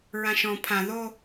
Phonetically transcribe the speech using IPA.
ɹ ã ʃ ɔ̃ pʰ ã ð o

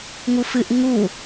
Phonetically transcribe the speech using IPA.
ŋ u f ɨ ʔ ŋ u

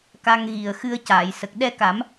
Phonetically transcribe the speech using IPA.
k a˧ ŋ ɣ i˨˩ ə̯ x ɨ˧ ə̯ c aː˨˩˨ j s ə˨˩ k̚ ɗ ɛ˧ k a˨˩˦ m

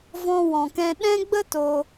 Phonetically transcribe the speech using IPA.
v ɔ̃˧ w ɔ̃˨ k ɛ̃˧ ɗ ɛ̃˦ ɡ͡b ə˦ t o˦

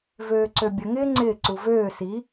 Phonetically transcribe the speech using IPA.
v øː ǀ ø bʲ ə ŋ ɪː ŋ͡ǀ ɪː ǀ u v øː s i

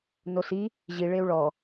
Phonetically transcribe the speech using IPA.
n o s i | ʑ i ɭ e u̯ ɭ ɔ

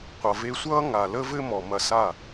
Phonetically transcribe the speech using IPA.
qʷ ʌ˨ v e˧ sʷ ʌː˦ ŋ a˨ l ə˦ v ɘ˦ m ɔ˨ m ɐ˧ s a˦˨

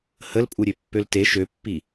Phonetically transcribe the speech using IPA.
h ə l pʼ u ɾʲ ø pː ø l t e ʃ ø pː i

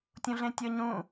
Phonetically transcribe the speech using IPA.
tʲ ũ ɮ ẽ tʲ ɤ ɲ ũ

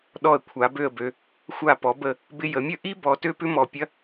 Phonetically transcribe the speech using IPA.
ɗ ɔ˧˩ ə̯ kʷʰ a˩˧ b ø˥˧ ə̯ b ø˧ | xʷ a˧˩ p ɔ˩˧ b ə˧˩ | b ɪ˧ j ə˩˧ mʲ ə˥˧ ʔ i˥ b ɔ˧ t ø˥ p ʏ˥ m ɔ˧˩ pʲ ɐ˥

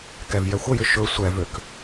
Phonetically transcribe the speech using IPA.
k ɛ v j ɛ xʷ ə j ʏ ʃ ɵ sʷ ɛ v ø k

